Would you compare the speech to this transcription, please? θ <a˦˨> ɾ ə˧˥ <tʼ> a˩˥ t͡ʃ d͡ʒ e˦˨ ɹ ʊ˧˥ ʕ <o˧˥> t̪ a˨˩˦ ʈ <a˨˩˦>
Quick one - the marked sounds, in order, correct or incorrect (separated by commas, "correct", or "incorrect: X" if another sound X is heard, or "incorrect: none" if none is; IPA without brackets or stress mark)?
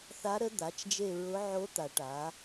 incorrect: a˧˥, incorrect: d̪, correct, incorrect: a˩˥